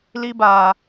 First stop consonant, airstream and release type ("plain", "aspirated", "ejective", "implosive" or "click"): plain